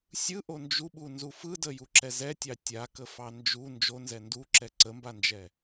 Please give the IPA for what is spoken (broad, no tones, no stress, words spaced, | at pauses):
sʲɯʔo nd͡ʒuɓunzu fɯdəjuǁɛ zɛtʲɑ tʲakəfɑ nd͡ʒu nd͡ʒonzɛ nduǁɛ ǀəmband͡ʒɛ